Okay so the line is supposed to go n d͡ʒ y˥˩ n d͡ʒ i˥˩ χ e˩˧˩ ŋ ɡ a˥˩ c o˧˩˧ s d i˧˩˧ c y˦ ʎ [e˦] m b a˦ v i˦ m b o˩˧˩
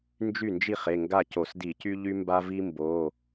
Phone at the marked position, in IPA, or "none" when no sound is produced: y˦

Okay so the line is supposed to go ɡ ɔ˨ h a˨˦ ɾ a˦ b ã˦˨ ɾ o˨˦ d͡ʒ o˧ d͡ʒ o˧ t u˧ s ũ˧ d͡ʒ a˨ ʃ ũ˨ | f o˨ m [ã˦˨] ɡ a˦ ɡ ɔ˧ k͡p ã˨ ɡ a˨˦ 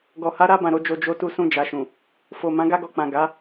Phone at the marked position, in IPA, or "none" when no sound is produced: ã˨˦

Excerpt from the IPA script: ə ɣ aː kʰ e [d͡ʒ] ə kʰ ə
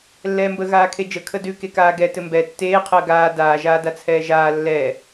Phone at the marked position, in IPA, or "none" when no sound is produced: d͡ʒ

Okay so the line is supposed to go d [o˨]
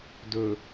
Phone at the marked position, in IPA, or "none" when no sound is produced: ɵ˨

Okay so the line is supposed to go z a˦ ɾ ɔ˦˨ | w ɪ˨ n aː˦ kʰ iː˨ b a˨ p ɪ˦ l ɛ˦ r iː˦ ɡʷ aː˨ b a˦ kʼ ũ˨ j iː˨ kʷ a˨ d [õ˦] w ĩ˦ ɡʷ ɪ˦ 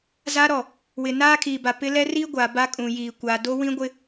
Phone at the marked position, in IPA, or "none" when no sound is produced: o˦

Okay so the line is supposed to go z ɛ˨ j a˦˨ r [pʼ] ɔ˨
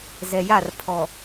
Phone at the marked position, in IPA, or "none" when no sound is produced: pʰ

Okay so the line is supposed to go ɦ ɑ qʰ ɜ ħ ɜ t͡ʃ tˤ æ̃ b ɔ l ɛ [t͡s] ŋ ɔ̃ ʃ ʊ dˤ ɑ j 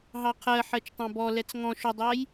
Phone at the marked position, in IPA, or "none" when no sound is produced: t͡s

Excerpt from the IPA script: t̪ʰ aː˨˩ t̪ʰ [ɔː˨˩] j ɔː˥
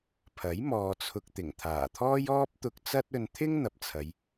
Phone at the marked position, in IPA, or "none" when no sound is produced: ɔː˥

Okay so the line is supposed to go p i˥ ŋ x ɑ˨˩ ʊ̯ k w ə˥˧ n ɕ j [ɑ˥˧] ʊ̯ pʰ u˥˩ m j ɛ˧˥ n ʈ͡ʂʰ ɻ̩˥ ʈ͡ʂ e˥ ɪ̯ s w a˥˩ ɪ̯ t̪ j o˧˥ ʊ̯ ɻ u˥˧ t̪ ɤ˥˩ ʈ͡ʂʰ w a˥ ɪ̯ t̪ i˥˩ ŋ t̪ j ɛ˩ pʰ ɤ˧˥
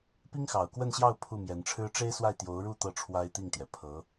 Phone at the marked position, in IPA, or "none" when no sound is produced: ɑ˥˧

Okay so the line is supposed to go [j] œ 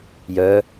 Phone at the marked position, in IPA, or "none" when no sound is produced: j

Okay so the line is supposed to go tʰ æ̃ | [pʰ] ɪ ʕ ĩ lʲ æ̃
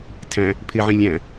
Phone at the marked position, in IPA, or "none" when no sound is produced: pʰ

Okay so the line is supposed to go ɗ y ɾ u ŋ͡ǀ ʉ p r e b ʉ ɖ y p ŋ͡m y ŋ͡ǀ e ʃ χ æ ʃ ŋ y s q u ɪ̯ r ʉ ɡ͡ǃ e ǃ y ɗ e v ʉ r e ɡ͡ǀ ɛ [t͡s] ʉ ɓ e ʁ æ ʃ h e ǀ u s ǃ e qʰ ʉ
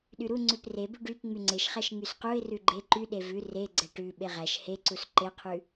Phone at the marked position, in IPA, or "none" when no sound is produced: ʈ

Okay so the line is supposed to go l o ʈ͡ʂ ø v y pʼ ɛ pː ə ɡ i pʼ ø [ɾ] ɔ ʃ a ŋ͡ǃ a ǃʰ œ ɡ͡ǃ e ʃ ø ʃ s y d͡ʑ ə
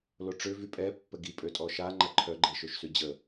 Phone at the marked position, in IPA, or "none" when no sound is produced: tʼ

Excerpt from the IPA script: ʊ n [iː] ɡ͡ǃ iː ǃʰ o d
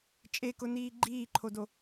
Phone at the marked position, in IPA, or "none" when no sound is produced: iː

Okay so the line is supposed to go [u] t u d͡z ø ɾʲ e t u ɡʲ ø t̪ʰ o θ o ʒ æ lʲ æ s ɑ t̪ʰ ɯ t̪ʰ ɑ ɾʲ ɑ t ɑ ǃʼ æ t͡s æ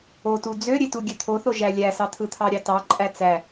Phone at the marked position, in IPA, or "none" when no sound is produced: o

